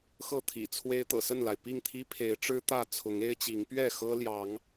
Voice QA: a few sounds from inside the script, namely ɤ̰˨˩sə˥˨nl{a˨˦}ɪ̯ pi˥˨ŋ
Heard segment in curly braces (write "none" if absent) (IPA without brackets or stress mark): a˩